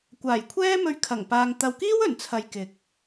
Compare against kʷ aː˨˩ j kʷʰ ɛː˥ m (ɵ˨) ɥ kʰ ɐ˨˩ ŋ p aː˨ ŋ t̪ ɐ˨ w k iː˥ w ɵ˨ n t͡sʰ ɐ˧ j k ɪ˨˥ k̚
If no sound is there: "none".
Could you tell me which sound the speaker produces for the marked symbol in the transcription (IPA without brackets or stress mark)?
ɵ˧